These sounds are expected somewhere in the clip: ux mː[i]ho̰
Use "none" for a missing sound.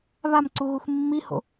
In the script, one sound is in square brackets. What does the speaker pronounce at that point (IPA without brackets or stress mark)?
i